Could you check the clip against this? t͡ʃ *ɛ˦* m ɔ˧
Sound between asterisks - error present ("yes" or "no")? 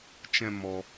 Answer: yes